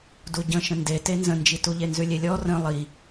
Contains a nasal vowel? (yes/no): yes